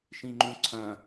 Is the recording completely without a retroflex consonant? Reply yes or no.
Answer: yes